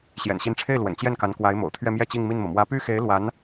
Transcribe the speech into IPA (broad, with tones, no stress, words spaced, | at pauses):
ɕjɛ̰˨˩nɕi˧˥nʈ͡ʂʰe˥˩ɪ̯lwə̰˨˩n t͡ɕjɛ˥˩nka˧˥n kwa˧˥ɪ̯mo̰˨˩ʊ̯t̪ʰɥɛ˥˧ mjɛ˥˧t͡ɕi˥˧ŋmi˥˩nmɤ˩ mwä˧˥py˥˩xe˧˥ɪ̯ lwa˧˥n